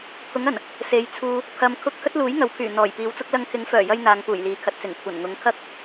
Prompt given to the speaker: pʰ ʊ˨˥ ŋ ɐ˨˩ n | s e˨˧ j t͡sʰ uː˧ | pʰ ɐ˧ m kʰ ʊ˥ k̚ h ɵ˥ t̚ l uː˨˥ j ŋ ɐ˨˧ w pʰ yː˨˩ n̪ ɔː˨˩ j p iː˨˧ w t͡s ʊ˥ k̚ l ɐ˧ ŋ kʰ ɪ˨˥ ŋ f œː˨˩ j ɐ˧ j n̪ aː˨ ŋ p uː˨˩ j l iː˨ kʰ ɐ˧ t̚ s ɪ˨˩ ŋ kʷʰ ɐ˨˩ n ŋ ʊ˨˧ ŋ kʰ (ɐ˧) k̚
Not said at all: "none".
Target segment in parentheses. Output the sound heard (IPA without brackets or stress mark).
ɐ˥